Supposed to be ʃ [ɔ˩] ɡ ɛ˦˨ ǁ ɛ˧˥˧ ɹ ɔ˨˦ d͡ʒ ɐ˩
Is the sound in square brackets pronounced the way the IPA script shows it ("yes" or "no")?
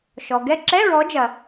yes